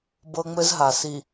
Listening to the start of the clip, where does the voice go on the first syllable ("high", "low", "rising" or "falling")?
high